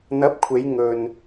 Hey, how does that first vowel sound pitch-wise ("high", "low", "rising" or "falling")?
rising